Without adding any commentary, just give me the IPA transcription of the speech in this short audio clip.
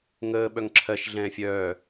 ŋ əː ɓ œ ŋ ǁʰ ɜ ʃ ɮ ɛ̃ː fʲ œː

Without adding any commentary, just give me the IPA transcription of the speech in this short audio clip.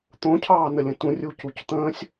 t̪ õ cʰ ɑː n ə lʲ ə̃ t ũ rʲ u c u c t̪ ə̃ː sʲ

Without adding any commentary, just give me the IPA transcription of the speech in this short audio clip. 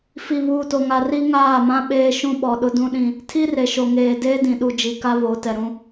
f i˨ β uː˨ t o˨ ŋ a˨ r i˦ ŋ aː˦˨ m ã˦ ɓ eː˦ ʃ ũ˦ ɓ ɔ˨ ɗ ʊ˦ d ũ˦ ɗ ĩ˦ | tʰ i˦ r e˨ ʃ o˨ ŋ eː˨ d eː˦ d ĩ˨ ɗ u˨ d͡ʒ i˨ k a˦ β o˨˦ t ɛ˨ ɾ ũ˦

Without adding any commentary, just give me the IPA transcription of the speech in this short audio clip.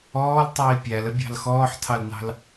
ɔː l tˤ iː pʲ æ l ə bʲ ɑ̤ l x ɔː ħ tʰ ɑ l n ɑ̤ l

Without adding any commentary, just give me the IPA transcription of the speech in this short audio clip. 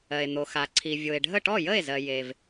ɜ˩ e̯ n̪ o˩ x a˩ ǀʰ i˩ vʲ o˩ e̯ ɖʱ ə˥˩ ʈ ɔ˥˩ j ə˥˩ e̯ z ɜ˩ j e˩ v

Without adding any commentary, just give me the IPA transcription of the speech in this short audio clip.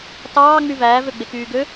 t ɑː ŋ͡m y v æː v ø ɡ͡b e k yː ɡ ø

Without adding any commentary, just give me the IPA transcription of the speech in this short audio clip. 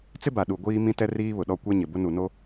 t͡s ɪ˦ b a˨ ɗ u˨ ɡʷ iː˦ m ĩ˦ t ɛ˦ r iː˦ β ʊ˨ ɗ ɔ˦ kʷ ɛ˦ ɲ ɪ˨ b ʊ˦ n u˨ n o˦

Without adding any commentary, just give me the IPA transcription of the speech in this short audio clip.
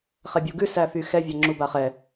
χ ɛ bʲ u ɡ ʉ s æ f y x ɛ vʲ a ŋ͡ǁ u b a χ ɛ

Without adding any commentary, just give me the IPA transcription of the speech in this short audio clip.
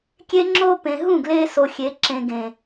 kʲ e˦ ŋ͡ǁ oː˦ p ẽ˨ ɦ ũ˦˨ ɡ l eː˦ s o˨ xʲ e˨˦ ǁ ẽ˨ ɡ ẽ˨

